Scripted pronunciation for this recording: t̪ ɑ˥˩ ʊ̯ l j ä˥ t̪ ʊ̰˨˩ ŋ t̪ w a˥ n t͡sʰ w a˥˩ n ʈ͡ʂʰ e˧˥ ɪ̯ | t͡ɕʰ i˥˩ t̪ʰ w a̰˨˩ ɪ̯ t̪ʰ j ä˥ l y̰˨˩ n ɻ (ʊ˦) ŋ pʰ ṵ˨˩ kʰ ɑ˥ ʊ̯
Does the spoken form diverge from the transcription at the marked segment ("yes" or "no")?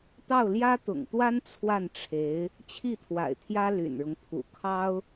no